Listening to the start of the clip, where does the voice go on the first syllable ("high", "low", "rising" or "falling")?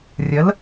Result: rising